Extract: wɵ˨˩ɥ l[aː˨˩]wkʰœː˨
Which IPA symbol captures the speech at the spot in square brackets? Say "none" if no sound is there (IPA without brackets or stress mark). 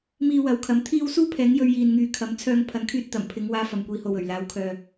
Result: aː˨˧